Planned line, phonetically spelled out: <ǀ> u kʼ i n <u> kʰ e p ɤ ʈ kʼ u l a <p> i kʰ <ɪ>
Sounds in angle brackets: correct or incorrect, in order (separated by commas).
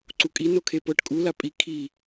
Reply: correct, incorrect, incorrect, incorrect